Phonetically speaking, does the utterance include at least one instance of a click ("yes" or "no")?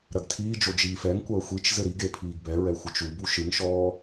no